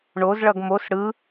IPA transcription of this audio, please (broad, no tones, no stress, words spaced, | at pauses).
ɳozɭʌɡ mos ɽɯ